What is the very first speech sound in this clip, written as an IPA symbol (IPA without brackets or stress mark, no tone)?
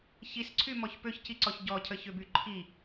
ç